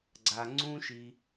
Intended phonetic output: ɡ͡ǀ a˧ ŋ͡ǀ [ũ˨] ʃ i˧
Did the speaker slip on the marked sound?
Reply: yes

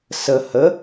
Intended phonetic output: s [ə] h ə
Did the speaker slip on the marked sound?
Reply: no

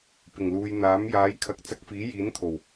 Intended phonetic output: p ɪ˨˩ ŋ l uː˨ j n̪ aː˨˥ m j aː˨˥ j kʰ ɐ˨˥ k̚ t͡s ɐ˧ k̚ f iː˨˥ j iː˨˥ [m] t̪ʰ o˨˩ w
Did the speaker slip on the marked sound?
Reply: yes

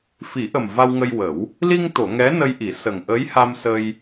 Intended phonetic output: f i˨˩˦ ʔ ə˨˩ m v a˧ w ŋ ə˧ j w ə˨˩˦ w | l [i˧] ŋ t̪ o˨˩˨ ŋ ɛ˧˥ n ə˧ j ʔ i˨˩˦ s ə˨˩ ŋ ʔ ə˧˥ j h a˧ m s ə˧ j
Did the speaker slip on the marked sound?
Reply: no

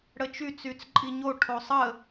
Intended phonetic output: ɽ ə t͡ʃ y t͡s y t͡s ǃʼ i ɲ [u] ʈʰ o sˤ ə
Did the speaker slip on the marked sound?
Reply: yes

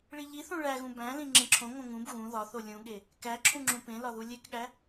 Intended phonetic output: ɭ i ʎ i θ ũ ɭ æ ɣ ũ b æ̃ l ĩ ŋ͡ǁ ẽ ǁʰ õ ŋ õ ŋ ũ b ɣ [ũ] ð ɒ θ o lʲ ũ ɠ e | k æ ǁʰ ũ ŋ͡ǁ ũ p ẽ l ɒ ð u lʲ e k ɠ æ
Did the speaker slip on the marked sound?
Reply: no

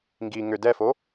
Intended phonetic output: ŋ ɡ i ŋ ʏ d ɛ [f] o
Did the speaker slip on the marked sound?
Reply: no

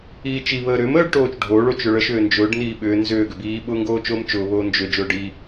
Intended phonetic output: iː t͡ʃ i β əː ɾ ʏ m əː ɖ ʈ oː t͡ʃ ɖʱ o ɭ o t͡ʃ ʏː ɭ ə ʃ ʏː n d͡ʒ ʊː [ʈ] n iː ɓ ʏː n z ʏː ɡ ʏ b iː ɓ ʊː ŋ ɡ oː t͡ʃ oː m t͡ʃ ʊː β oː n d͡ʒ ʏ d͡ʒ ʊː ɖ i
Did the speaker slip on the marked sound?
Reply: yes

